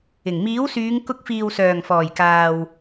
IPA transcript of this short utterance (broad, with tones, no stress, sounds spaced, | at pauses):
ɪ˨˩ ŋ m iː˨˥ w s yː˨˧ ŋ k ʊ˧ k̚ f iː˨ w s œː˨˩ ŋ f ɔː˨˩ j k aː˨ w